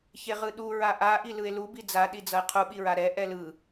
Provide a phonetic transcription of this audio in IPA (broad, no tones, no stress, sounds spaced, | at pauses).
ç e ʁ ɯ ɗ u ɹ a ʔ a ʔ i l ɯ e̯ l u b i d͡z a ɗ i d͡z ʌ e̯ qʰ u ɓ i ɹ a ɾ ɛ ʔ ɛ l ɯ